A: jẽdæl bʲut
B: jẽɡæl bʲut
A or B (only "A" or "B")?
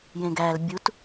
B